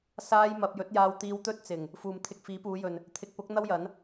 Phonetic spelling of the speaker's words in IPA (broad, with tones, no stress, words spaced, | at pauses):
saː˥jmɐ˧p̚ jɵ˨˥t̚jaː˧wt̪iː˧w t̪ɵ˥t̚t͡sɪ˨˩ŋ | fuː˨mt̪ʰɪ˧k̚ fiː˨˥puː˨˧jɵ˨n | t̪ʰɪ˨k̚pʊ˨˥k̚ n̪ɐ˥wjɐ˨˥n